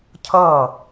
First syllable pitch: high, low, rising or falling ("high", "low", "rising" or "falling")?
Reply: falling